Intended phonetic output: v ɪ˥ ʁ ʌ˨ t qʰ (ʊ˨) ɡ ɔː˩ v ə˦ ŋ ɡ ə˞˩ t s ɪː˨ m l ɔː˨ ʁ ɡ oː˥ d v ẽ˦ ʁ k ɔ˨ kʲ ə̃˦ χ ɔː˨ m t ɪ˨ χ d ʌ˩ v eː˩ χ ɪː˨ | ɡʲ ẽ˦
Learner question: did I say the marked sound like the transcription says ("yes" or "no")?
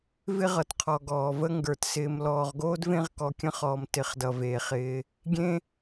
no